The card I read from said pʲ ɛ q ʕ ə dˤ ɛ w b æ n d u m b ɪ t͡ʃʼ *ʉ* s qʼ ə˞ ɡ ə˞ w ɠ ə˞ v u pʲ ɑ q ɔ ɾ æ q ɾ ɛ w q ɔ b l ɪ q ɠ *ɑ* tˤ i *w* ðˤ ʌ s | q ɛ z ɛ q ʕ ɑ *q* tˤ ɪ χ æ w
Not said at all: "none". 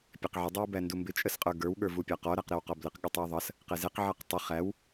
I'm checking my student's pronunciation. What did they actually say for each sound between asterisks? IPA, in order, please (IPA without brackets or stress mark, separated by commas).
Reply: ə, ə, w, q